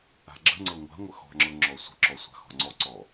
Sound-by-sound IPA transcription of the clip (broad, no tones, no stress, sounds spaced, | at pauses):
a̤ ɡ͡ǁ ə̤ ŋ͡ǀ ɤ ŋʷ a̤ ŋʷ ə x ɔ̤ ŋ͡ǁ ɤ ŋ͡ǁ ɔ sʷ ə̤ ǁ ɔ sʷ a̤ x ɔ̤ ŋ͡ǀ ɔ ǀ ɔ